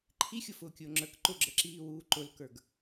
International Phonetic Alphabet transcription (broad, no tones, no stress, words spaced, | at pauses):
ǃʰixʲʊfʊːkʲʊː ŋ͡ǁə˞k ǃʊɡ͡ǁəǁiːwuː ǃʊlkə˞ɡ